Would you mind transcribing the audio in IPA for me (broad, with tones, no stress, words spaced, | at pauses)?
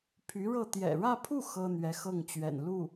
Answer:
pʰy˧˥ɻɤ˥˩ t̪jɛ̰˨˩ɻä˥˧pʰu˥˩ xɤ˥ n̪ɥɛ˧˥xɤ˥˩ŋt͡ɕɥɛ̰˨˩n lu˥˩